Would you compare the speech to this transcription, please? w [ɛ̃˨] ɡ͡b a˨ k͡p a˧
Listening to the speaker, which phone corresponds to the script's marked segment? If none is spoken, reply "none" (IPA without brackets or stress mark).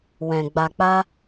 ɛ̃˨